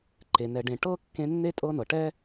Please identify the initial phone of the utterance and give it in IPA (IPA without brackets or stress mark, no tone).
ǃ